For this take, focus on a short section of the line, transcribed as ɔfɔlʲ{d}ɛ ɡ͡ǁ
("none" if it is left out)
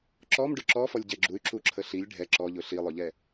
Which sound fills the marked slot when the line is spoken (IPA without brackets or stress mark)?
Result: ɟ